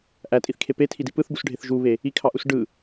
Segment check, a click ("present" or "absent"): absent